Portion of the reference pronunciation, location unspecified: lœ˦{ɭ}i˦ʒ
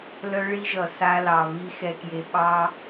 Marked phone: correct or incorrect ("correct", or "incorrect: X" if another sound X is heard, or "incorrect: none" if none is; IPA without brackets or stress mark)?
correct